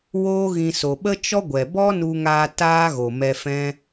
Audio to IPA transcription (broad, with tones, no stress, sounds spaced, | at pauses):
w oː˦ ɣ ĩ˧ s o˨ ɓ ə˦ t͡ʃ ɔ˦ ɡʷ ɛ˨ b ɔ˦ n u˧ ŋ aː˧ t aː˦ ɣ o˨ m ɛ˧ f ɛ̃˦